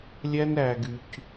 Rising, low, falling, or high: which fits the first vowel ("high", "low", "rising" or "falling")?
high